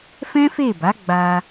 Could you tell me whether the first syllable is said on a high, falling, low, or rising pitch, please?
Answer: high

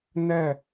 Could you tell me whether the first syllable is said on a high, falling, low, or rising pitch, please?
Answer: falling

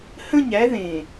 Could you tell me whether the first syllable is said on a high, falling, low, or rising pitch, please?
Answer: falling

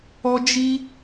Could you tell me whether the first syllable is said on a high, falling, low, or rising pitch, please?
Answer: high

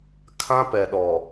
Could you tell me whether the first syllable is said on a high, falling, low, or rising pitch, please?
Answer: high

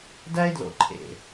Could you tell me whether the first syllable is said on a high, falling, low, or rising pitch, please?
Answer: high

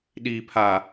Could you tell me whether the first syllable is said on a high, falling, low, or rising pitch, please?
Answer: low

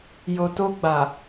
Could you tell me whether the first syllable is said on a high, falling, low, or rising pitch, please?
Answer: low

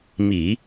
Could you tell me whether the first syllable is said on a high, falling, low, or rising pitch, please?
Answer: low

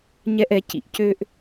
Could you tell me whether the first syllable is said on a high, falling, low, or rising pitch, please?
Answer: high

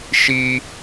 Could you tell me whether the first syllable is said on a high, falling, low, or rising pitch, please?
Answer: high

